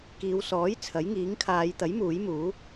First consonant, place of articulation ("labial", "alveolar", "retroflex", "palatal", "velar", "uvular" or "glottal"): velar